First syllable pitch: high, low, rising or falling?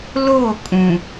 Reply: falling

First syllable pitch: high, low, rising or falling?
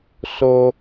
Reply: low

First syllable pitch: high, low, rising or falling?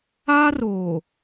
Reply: high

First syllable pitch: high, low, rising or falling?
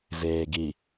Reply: low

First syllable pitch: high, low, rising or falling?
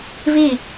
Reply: falling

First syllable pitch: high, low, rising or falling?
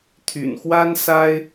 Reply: low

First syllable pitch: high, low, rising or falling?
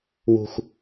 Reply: low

